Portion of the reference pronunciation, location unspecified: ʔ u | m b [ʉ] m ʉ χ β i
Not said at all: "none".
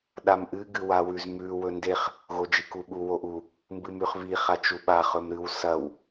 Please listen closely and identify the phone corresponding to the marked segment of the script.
ɨ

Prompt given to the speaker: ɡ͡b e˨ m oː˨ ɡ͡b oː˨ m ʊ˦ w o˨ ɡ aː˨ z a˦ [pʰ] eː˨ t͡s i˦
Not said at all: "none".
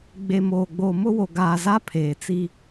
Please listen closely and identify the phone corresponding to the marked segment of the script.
pʰ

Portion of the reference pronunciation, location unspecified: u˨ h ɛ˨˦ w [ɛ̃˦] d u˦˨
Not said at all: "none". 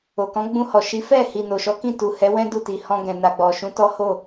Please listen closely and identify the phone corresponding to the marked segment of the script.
ɛ̃˦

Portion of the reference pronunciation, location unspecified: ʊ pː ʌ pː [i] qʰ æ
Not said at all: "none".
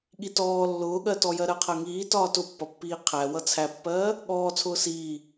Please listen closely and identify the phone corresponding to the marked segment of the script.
iː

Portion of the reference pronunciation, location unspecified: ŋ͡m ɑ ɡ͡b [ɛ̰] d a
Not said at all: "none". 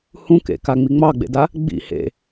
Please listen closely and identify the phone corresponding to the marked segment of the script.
ḛ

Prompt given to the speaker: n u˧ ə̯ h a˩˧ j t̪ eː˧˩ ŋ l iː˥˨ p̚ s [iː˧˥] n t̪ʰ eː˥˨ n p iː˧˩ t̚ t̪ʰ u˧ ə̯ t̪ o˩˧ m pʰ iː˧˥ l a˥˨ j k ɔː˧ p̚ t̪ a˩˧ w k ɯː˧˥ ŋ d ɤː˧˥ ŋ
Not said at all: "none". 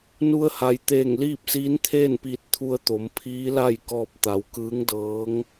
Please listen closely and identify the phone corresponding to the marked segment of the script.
iː˧˥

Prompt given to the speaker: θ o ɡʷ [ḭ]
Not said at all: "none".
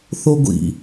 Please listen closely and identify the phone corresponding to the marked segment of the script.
ḭ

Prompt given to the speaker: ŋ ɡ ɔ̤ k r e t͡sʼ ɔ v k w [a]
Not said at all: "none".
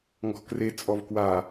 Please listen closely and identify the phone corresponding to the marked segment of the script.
a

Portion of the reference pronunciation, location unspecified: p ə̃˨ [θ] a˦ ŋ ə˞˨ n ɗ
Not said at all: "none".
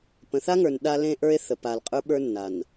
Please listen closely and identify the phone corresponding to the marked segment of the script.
θ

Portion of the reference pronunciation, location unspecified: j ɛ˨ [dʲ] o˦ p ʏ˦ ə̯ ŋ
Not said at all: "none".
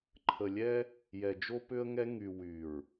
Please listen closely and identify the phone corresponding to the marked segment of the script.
d͡ʒ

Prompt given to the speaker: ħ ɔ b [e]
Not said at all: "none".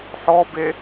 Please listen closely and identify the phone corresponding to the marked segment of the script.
e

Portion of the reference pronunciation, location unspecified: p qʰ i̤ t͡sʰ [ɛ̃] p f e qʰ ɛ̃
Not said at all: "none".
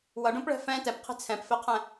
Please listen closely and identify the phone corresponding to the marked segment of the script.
ɛ̃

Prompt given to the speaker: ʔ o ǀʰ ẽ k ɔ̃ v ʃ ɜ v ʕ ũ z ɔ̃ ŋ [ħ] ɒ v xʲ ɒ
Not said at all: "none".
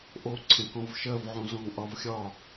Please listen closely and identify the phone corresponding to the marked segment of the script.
ʔ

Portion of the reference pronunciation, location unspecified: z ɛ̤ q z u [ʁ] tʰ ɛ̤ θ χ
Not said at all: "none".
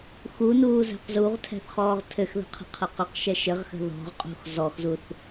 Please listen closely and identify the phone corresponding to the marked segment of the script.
ʁ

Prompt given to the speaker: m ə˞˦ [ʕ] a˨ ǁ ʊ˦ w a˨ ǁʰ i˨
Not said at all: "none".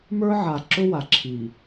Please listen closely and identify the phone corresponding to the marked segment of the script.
ʕ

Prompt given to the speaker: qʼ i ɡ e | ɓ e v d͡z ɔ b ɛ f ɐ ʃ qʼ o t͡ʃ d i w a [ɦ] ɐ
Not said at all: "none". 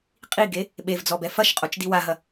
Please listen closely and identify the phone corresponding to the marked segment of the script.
ɦ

